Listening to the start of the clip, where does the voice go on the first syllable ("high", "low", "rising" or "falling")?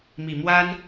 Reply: low